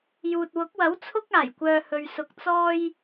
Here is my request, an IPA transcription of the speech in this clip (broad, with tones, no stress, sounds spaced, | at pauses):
j uː˨ t̚ w ʊ˨˥ k̚ w ɐ˨˥ w t͡sʰ ʊ˥ k̚ aː˨˩ j kʷ œː˨ h ɵ˨ ɥ s ʊ˧ k̚ t͡s ɔː˥ j